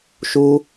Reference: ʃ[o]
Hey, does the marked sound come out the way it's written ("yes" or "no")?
no